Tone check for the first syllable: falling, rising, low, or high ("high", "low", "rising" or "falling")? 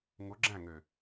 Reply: rising